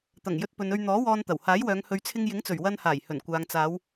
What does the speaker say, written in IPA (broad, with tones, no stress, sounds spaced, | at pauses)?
t̪ ɐ˨˩ ŋ j ɵ˧ t̚ p ɵ˨ n ɵ˧ ɥ n̪ ɔː˨˥ w ɔː˧ n t̪ ɐ˨˩ w h aː˨˥ j w œː˨˧ ŋ h ɵ˨˧ ɥ t͡sʰ ɪ˧ ŋ j ɪ˨˥ ŋ t͡s ɵ˨˩ ɥ w ɐ˧ n h aː˨˩ j h ɵ˨˩ n kʷ aː˨ ŋ t͡s aː˨˧ w